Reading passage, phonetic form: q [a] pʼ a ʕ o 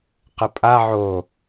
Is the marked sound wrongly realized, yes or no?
yes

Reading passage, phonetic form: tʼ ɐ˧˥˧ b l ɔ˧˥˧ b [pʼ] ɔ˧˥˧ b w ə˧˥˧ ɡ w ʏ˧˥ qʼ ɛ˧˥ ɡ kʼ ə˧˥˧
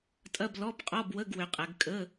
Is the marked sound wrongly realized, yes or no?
yes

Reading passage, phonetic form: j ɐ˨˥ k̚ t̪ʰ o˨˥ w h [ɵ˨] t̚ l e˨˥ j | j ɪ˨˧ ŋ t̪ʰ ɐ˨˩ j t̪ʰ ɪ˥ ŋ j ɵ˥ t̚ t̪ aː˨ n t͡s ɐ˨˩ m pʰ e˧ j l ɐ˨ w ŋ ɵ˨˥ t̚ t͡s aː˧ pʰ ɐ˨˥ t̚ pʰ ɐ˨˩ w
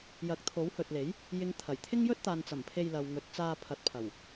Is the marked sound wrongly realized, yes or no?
no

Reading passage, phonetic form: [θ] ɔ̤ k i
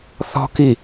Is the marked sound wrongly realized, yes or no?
no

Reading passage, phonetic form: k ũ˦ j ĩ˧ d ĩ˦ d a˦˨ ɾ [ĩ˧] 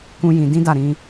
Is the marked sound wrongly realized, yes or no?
no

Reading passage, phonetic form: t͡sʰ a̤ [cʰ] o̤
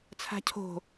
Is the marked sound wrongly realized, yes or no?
no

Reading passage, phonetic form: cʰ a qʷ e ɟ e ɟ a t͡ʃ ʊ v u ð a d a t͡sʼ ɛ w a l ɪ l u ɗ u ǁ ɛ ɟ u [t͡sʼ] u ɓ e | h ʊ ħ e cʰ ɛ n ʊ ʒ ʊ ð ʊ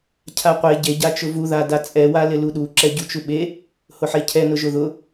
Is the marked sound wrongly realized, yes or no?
yes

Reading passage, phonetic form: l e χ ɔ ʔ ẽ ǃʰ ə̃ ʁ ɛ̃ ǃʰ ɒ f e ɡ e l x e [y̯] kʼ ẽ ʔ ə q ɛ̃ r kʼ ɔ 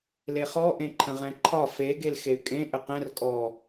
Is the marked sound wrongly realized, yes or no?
no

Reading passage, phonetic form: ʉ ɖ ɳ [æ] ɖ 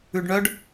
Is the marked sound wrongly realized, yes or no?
yes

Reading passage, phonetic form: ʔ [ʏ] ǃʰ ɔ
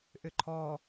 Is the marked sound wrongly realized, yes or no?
no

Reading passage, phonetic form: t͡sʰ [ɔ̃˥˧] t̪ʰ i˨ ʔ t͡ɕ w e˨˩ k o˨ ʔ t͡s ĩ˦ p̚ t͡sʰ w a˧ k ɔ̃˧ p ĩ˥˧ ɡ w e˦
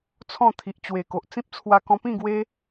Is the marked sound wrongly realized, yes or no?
no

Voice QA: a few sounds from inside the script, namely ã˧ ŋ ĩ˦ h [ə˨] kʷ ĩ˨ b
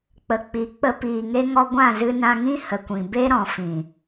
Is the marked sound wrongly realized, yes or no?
no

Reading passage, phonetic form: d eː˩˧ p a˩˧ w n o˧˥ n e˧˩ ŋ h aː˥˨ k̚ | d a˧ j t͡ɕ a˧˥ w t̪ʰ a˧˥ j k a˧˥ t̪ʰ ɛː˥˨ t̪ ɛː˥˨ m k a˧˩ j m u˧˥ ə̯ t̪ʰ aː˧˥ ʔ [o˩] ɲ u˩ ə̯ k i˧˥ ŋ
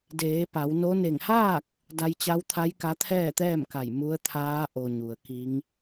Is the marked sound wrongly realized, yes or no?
no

